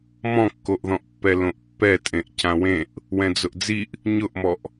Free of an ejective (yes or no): no